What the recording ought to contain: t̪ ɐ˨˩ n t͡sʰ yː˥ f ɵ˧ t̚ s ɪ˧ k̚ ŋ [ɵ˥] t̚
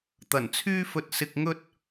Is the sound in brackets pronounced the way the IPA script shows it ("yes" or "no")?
yes